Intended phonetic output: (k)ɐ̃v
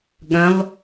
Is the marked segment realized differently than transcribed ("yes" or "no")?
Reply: yes